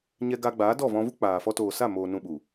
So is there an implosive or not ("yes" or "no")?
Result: yes